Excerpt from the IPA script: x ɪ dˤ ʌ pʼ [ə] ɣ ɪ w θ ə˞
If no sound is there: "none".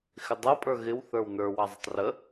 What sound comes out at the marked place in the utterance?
ə˞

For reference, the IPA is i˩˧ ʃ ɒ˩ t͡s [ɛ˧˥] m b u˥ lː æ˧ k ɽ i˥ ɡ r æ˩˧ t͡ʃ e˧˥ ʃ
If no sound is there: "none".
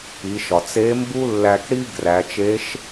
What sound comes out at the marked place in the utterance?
e˧˥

